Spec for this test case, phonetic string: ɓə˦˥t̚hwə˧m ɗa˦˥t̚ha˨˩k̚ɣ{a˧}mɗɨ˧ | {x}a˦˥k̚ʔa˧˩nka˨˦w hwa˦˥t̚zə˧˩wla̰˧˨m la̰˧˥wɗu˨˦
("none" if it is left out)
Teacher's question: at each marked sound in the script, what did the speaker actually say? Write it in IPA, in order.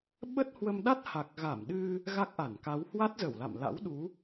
a˧˩, ɣ

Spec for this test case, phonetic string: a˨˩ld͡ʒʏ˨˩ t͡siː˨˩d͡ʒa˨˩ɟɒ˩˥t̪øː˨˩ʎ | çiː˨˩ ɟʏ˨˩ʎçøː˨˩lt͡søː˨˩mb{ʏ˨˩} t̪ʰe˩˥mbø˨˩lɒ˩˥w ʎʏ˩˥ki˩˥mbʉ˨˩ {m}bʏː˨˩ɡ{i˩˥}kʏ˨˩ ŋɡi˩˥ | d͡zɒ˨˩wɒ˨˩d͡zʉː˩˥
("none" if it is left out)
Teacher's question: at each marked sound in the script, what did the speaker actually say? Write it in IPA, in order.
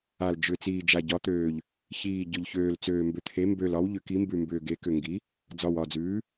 ʏ˩˥, m, e˩˥

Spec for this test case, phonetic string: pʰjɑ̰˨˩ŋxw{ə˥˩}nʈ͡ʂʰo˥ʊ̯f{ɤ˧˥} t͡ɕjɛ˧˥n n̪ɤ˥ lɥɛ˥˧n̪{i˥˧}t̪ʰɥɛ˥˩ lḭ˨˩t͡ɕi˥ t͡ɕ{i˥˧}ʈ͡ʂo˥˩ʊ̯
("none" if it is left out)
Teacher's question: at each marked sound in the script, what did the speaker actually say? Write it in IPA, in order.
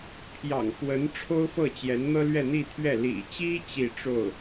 ə˧˥, ɤ˥˩, i˥˧, i˥˧

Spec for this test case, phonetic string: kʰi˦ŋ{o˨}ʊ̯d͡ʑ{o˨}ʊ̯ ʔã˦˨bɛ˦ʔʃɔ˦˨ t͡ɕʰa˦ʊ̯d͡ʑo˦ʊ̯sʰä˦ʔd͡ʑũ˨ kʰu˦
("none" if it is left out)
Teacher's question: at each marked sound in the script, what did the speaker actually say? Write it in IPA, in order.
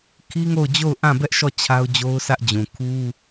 o˦˨, o˦˨

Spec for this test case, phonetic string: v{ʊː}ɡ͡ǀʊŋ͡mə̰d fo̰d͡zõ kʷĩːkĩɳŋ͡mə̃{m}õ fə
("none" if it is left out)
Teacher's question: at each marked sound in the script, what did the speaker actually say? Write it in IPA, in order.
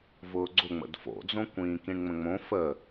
ʊː, ŋ͡m

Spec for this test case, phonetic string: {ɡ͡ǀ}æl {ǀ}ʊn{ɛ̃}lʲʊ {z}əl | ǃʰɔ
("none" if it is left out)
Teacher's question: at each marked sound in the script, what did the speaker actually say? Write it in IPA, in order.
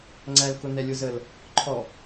ŋ͡ǀ, k, ɛ, z

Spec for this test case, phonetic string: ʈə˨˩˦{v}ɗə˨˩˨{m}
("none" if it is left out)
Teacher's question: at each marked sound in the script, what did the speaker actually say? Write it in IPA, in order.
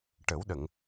w, ŋ

